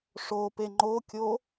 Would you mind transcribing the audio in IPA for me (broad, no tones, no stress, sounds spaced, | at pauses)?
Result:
ʂ o p e ŋ͡ǃ o kʲ o